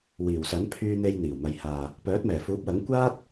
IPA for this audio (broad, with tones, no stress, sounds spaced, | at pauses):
w iː˨˩ w s ɐ˨˥ n pʰ yː˧ n̪ e˧ j n̪ iː˨˩ w m ɐ˨ j h aː˨ | p œː˨˥ t̚ m ɛː˨˩ f uː˨˥ p̚ w ɐ˨˥ ŋ kʷ aː˥ t̚